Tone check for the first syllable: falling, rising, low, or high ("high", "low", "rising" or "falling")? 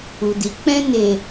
low